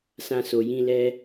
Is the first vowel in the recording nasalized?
yes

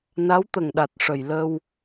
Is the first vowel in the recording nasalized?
no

